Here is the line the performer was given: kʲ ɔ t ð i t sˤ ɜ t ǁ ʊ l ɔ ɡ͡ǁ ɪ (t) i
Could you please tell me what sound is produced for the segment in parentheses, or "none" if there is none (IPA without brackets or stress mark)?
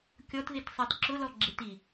t